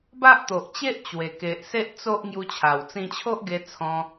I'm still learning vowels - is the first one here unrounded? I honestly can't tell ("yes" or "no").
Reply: yes